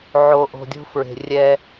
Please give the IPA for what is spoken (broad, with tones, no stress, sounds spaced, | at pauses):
ʕ o˨ ʔ o̤˨ dʲ o̤˦ f ɹ e̤˨ rʲ ɛ˦